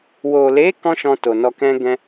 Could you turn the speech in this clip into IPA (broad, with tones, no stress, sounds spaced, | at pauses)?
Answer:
w o˨ l e˨˦ k ɔ̃˦ ʃ ɔ̃˧ t o˨ n ɔ˧ k ɛ̃˦ ɡ ɛ̃˦